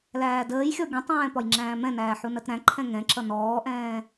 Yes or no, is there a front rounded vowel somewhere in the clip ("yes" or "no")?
no